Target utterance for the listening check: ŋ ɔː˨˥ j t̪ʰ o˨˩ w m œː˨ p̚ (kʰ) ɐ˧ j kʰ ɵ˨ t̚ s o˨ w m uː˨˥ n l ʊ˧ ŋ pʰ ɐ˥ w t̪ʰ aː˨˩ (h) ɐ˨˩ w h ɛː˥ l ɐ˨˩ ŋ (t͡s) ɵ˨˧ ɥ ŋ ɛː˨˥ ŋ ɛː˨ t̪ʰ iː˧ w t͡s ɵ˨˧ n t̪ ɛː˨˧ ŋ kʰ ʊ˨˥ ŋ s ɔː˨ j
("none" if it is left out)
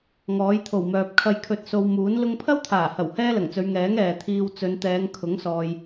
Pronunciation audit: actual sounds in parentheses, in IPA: kʰ, h, t͡s

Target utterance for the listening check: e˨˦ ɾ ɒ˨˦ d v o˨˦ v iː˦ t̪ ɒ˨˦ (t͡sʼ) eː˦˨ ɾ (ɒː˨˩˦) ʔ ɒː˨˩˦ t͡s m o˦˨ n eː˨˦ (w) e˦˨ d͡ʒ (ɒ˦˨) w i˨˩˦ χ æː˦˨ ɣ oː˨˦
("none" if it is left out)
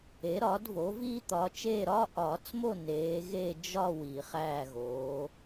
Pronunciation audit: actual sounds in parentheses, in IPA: t͡ʃ, ɒː˦, ɣ, ɒ˦˨

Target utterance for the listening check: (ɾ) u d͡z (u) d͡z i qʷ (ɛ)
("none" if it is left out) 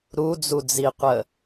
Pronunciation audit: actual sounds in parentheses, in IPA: ɾ, u, ə

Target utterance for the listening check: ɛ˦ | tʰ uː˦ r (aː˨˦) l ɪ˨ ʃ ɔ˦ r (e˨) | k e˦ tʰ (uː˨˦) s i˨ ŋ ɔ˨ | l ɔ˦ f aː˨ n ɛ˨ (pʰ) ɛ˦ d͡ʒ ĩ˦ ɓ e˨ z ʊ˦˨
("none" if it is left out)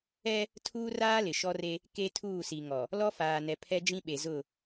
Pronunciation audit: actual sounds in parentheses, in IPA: aː˦, e˦, uː˦˨, pʰ

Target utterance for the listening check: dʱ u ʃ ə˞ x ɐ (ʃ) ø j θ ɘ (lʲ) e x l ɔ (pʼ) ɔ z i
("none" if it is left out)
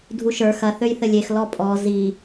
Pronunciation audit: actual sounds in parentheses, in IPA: θ, lʲ, pʼ

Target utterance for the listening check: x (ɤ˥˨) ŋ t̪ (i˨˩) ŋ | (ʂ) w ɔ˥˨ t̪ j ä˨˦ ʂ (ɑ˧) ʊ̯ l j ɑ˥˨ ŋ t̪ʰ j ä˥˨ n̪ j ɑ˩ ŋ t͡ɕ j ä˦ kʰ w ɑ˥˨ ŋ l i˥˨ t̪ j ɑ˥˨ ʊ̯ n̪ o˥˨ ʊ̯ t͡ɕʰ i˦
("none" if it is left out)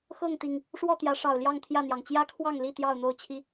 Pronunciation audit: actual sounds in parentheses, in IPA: ɤ˥˨, i˨˩, ʂ, ɑ˨˩

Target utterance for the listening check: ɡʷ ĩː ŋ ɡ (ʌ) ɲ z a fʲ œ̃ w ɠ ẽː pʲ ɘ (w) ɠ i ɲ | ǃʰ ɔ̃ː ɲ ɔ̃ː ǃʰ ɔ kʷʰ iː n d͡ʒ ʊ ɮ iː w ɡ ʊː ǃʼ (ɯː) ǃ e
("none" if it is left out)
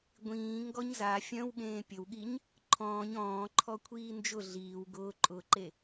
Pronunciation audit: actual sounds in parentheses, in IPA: ɔ, w, ʊː

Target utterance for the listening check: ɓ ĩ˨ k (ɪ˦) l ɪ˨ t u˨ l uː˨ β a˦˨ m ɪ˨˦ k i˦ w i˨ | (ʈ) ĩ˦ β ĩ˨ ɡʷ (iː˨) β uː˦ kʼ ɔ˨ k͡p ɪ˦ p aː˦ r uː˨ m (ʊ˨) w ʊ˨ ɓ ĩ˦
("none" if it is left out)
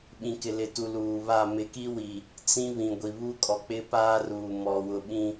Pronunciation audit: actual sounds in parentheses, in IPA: ɪ˨, t͡s, i˨, ɔ˨

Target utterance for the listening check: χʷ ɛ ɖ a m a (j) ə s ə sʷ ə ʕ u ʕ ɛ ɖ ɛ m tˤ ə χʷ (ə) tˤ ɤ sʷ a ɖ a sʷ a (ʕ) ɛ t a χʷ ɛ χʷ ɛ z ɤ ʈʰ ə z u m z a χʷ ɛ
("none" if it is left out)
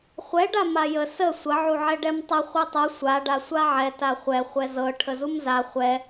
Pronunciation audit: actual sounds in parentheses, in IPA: j, ɛ, ʕ

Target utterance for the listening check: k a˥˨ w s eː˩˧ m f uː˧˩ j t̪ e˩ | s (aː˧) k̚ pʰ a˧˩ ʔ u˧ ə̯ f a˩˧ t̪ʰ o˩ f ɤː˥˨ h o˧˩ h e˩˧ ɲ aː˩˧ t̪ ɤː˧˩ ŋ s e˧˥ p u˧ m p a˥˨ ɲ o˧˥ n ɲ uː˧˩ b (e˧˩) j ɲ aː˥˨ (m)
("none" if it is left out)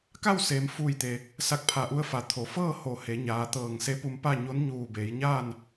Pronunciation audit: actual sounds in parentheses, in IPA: a˧, e˩˧, n

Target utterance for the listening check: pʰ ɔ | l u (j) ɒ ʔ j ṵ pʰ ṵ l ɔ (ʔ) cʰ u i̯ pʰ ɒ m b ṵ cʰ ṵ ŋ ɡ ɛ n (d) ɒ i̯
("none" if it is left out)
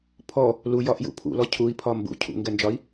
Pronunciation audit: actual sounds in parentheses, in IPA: j, none, d͡ʒ

